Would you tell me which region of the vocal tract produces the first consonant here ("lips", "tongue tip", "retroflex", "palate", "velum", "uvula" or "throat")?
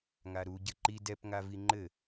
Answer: velum